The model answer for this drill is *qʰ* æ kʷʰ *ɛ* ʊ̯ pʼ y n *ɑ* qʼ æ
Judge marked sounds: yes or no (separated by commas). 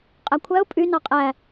no, no, yes